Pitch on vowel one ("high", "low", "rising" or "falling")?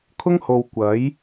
high